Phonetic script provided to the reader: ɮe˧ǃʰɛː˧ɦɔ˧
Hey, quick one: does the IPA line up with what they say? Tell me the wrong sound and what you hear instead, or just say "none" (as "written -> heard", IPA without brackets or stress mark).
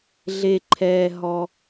none